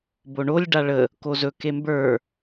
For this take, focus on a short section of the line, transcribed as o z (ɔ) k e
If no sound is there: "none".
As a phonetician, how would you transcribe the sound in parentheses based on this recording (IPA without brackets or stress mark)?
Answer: ɵ